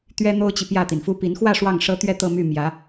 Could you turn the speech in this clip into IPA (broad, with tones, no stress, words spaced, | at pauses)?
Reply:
t̪ɥɛ˥n̪o˥ʊ̯t͡ɕi˨ pjä˥˩t̪i˩nfu˥pi˧˥n xwä˥˧ ʂwɑ˥˩ŋʂɤ˥t̪ɥɛ˥˧ t̪ɤ˥˧my˥˩ mjä˧˥